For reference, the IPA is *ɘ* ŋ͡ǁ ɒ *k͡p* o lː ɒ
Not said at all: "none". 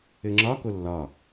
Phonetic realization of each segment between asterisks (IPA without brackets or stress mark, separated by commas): ɘ, k